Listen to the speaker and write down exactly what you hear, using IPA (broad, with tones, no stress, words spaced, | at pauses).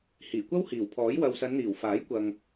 hiː˨˩kʷɐ˥w hiː˨˩wpʰɔː˨˥j wɐ˨wsɐ˨˧nn̪iː˨˩w faː˨˥jkʷɐ˨ŋ